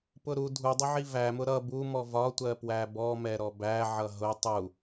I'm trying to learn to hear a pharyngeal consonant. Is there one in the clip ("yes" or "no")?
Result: yes